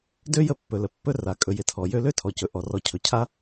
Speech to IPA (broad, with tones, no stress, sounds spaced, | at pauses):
d ø˥ j ə˥ pː ɵ˩ l ə˩ pː ɵ˥ r a˩ kʼ ɵ˩ j ɪ˩ tʰ ɔ˩ j ø˥ l ø˥ tʰ ɔ˩ c ɵ˩ ʔ ɔ˩ r ɔ˩ cʰ ɵ˩ cʰ a˥